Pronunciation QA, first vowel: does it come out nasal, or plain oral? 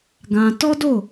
nasal